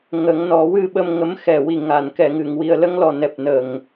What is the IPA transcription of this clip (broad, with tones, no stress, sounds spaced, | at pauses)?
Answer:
ŋ ə˨˩˦ ŋ n ɔ˨˩˦ w ɨ˧ ɓ ə˧ m ŋ ə˨˩˦ m x ɛ˨˩ w i˨˩ ŋ a˨˩˨ n k ɛ˨˩˨ ŋ ɨ˨˩˨ ŋ w i˨˩ ə̯ l ə˧ ŋ l ɔ˨˩ n ɛ˨˩ p̚ n ə˨˩ ŋ